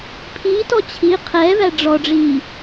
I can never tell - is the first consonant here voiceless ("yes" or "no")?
yes